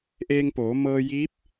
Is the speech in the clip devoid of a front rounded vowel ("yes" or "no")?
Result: yes